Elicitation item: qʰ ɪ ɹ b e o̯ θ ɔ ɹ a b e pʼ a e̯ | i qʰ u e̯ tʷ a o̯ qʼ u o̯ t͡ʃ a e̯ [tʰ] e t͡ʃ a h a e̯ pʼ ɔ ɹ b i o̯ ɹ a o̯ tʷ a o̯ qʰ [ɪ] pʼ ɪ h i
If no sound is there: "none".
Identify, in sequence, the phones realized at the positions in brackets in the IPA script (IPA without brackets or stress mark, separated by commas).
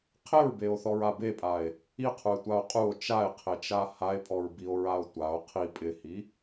qʰ, i